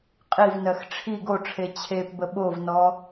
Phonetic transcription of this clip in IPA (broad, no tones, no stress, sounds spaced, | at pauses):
qʼ i v n ɜ x ʈ͡ʂʰ i ɡ o ʈ͡ʂʰ e t͡ɕʰ e p b ə ɓ o v n ɔ